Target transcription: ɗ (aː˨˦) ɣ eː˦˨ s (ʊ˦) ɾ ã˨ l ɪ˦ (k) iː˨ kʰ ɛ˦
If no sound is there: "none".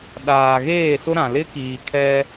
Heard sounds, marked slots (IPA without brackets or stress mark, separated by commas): aː˨, ʊ˦, k